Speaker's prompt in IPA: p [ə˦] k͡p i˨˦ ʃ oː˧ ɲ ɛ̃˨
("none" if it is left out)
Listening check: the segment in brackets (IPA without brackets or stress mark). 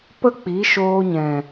ə˦